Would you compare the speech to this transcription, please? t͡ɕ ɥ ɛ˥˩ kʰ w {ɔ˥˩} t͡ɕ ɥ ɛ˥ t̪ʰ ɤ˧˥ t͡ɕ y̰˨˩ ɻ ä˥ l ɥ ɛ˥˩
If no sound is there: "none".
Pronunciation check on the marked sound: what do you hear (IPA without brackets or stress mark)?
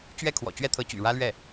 ɔ̰˨˩